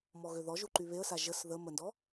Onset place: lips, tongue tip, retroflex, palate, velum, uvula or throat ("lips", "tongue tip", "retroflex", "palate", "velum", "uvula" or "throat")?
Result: lips